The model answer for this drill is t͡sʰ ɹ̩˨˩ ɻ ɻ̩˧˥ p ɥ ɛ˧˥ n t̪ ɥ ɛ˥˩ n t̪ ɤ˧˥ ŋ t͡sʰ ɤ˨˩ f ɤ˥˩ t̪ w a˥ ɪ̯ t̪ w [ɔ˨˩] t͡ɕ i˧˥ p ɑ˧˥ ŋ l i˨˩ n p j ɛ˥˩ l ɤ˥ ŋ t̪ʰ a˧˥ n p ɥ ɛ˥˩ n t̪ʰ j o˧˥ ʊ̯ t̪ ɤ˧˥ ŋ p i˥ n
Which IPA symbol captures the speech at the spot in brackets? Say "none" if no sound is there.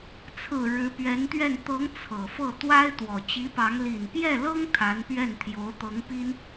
ɔ˨˩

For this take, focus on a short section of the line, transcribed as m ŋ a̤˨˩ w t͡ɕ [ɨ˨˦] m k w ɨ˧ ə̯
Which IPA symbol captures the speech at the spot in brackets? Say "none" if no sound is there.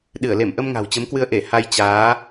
ə˨˦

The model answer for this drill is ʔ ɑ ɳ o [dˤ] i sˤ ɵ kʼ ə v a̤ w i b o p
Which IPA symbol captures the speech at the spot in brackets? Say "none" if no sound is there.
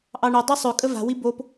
dˤ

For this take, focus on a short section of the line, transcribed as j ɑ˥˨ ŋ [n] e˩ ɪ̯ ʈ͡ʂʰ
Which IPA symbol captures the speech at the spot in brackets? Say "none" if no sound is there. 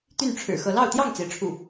t͡s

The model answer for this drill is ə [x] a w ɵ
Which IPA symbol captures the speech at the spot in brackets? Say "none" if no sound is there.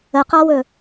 q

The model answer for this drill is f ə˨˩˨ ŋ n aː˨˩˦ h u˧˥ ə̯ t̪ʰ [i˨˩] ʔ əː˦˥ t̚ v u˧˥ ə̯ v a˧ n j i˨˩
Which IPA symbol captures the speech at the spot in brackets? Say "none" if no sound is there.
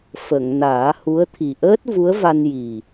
i˨˩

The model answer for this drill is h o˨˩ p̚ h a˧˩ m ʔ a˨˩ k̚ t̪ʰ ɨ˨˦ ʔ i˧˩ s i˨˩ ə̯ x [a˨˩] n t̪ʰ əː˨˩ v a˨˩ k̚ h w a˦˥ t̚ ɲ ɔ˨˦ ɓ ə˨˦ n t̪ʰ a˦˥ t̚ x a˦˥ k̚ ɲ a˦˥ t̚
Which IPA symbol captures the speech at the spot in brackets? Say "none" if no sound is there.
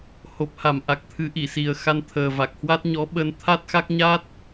a˧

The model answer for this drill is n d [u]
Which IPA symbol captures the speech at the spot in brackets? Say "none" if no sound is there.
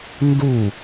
u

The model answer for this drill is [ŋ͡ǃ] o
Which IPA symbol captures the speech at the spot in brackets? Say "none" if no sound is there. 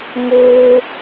ŋ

